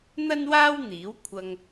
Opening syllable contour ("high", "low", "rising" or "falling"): high